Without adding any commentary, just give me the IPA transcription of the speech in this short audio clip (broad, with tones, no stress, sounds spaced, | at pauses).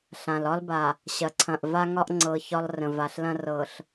ɬ ã˨ l ɒ˦ l b a˨ | ɕ ɐ˨ ǀʰ ɐ̃˨ ʔ v a˦ ŋ ɒ˦ ʔ ŋ͡ǀ ɤ˨ ç ɒ˦ lˠ r ə̃˨ v a˨ ɬ l ɐ̃˦ r ɤ˨ ɬ